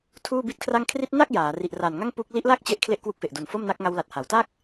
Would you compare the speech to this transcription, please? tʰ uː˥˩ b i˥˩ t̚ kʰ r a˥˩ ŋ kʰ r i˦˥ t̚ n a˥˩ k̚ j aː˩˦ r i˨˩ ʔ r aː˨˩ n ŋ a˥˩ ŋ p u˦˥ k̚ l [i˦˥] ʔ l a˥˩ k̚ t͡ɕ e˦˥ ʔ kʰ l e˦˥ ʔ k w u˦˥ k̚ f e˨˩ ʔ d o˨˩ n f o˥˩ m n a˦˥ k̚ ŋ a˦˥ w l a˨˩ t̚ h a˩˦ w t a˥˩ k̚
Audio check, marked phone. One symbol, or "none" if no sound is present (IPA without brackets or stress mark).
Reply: i˦˥